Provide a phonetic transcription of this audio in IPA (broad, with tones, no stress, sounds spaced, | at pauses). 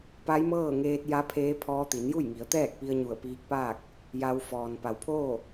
p a˧˥ j m ɤː˥˨ ŋ eː˧ t̚ j a˧˥ pʰ eː˧˥ pʰ ɔː˧ t̪ i˩˧ n j u˥˨ j ŋ i˩˧ ə̯ t̪ ɛː˥˨ k̚ p i˧ ə̯ ɲ u˧˩ ə̯ p iː˧˥ k̚ p aː˥˨ k̚ | j a˧ w f ɔː˩ n p a˩ w pʰ oː˥˨